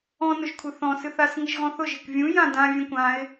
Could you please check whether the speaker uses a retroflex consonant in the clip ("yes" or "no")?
no